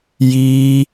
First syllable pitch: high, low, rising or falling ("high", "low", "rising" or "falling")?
high